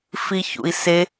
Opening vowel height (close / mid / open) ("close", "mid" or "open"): close